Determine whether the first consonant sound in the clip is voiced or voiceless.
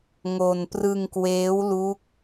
voiced